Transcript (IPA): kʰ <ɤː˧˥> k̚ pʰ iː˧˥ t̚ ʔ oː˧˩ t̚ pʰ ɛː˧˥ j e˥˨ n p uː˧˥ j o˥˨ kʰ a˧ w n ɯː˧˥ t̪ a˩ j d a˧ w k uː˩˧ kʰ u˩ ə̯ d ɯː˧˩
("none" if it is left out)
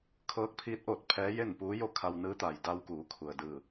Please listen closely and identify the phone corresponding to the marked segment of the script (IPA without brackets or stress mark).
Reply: ɤː˧˥